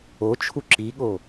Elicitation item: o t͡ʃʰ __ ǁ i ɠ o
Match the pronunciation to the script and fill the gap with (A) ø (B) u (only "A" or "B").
B